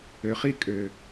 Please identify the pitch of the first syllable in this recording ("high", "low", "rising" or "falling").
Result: low